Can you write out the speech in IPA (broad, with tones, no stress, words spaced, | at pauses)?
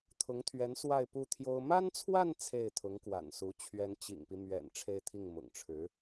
t̪ʰʊ˧˥ŋt̪ʰɥɛ˧˥n swa˥˧ɪ̯pu˥˩t̪ʰjo˥ʊ̯ ma˥nt͡sʰwa˥˧n t͡sʰe˥˩ɪ̯t̪ʰʊ˧˥ŋkwa̰˨˩nsu˧˥ t͡ɕʰɥɛ˧˥nt͡ɕḭ˨˩ŋpi˦mɥɛ̰˨˩n ʈ͡ʂʰe˥˧ɪ̯t̪ʰi˥˩ŋmʊ̰˨˩ŋ ʈ͡ʂʰɻ̩˧˥